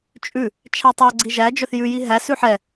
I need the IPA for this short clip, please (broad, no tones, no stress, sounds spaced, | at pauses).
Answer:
t͡ʃʼ ʉ | t͡ʃʰ æ tˤ æ ɡ͡ǀ i ʒ æ d͡ʒ œ θ j ʉ j i ɦ æ s ʉ ħ ɛ